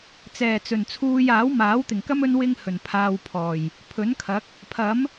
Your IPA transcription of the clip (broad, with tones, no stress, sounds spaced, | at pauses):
t͡s ɛː˨˩ t͡s ɵ˨˩ n t͡sʰ uː˧ j aː˨˥ w m aː˨˥ w t̪ ɪ˨˩ ŋ k ɐ˥ m ɵ˥ n w ɪ˥ ŋ h ɵ˨˩ n pʰ aː˧ w pʰ ɔː˨˩ j | pʰ ɵ˨˥ n kʰ ɐ˨˥ k̚ | pʰ ɐ˨˥ m